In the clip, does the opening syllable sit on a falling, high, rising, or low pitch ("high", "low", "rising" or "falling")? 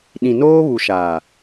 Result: low